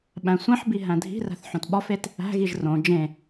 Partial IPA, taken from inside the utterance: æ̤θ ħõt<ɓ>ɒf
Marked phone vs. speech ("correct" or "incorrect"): correct